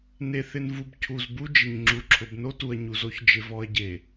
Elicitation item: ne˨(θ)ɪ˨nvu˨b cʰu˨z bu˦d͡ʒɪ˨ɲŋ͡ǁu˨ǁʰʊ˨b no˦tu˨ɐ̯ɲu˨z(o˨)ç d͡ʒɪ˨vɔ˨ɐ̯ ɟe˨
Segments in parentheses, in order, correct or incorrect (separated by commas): correct, incorrect